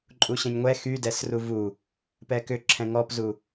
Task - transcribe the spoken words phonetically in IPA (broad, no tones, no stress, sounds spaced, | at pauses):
ǃʼ u ɕ ɛ̃ ɲ ŋʷ ɛ x y d ɛ s r u v u | p ɛ k ʏ ǁʰ ɛ̃ ŋ ɔ p z u